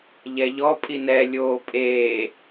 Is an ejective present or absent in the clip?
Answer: present